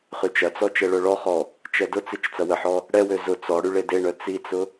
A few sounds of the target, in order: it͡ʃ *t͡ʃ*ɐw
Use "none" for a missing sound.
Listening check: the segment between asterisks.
t͡s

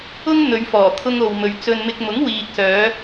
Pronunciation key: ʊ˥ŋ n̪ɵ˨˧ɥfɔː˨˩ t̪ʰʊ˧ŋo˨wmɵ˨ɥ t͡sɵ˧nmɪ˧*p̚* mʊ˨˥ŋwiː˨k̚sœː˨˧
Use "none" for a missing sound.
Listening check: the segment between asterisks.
k̚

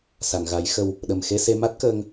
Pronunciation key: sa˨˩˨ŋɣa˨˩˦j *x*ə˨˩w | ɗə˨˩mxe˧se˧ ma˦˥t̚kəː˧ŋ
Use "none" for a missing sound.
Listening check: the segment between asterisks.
x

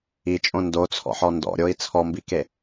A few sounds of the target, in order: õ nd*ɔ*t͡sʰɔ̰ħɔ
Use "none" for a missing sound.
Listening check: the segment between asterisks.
o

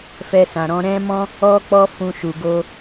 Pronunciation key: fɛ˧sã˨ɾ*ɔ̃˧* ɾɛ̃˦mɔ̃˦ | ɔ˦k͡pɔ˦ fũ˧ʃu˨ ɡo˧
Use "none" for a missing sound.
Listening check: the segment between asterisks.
ɔ̃˧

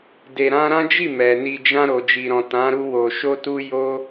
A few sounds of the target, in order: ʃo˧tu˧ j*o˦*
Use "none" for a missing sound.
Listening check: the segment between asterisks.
o˦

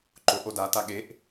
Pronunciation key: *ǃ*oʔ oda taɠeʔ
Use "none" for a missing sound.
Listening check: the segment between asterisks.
ǃ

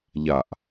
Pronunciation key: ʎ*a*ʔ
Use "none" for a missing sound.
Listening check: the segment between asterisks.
a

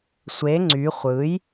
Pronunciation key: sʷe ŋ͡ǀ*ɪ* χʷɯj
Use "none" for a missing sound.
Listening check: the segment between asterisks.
y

